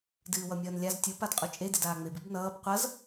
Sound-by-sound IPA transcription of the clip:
d ɨː w ʌ mʲ ʌː n lʲ a z tʲ u p a d qʼ u t͡ʃʼ e d e d aː ŋ͡m e b ɨ b n ʌː b qʷ ʌ z

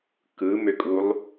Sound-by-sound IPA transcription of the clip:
k ɯ m ø kʼ u lˠ

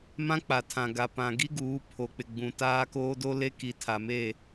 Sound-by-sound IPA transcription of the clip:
m ã˦ k͡p a˨ tʰ ã˨ ɡ a˨ p ã˨ ɡ i˦ ɡ uː˨˦ pʰ o˨ k͡p ɪ˨ ɡ͡b ũ˨ t aː˦ k oː˦ d o˦ l e˦ k i˨ tʰ a˨ m e˦˨

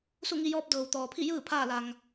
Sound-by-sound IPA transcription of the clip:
s u˥˨ ŋ i˧ j ɔː˧˥ p̚ d ɤː˩ w t̪ ɔː˩ pʰ i˥˨ j ɯː˥˨ pʰ aː˥˨ l a˩ ŋ

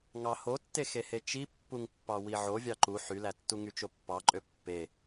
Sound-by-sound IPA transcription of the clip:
ŋ ɑ h o tː e x e h e t͡ʃ i pː u ŋ pː ɑ w i ʕ o vʲ ɑ ǃ u ħ y l æ tː u ŋ y t͡ʃ o pː ɑ ǃʼ ø pː e

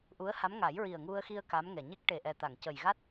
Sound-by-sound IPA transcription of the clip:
ʔ u˧˥ ə̯ h a˧˥ m ŋ a˨˩˦ j ɹ i˨˩ ə̯ ŋ u˧ ə̯ x i˧ ə̯ k a˧˥ m ŋ ɛ˨˩ ɲ e˦˥ k̚ ʈ e˨˩ ʔ ɛ˨˩ t̪ a˨˩˨ ŋ c ə˨˩ j ɣ a˦˥ t̚

